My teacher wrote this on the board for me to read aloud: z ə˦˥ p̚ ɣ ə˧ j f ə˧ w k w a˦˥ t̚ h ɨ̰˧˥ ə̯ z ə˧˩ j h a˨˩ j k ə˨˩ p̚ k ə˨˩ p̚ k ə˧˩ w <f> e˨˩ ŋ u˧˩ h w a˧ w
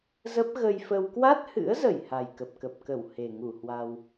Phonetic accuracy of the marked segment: incorrect: h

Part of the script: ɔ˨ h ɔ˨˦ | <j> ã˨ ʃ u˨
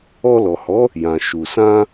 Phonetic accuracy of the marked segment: correct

